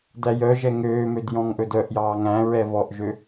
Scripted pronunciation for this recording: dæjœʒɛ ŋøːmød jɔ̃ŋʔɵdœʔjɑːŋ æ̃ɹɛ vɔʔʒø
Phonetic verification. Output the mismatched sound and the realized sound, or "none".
none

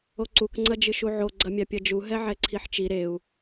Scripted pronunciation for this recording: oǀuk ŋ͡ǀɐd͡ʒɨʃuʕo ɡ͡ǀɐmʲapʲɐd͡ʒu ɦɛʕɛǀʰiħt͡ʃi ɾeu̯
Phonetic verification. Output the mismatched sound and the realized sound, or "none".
none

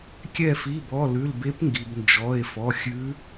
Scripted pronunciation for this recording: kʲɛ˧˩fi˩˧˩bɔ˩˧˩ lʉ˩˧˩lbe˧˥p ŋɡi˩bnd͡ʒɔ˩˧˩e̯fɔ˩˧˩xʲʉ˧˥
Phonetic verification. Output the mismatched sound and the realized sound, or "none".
none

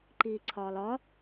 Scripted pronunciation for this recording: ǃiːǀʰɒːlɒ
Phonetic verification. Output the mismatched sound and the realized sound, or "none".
none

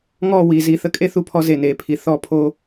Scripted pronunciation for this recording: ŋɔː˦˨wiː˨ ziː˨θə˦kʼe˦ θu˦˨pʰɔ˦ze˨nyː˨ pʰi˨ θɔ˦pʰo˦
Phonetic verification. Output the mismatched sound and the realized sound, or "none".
yː˨ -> eː˨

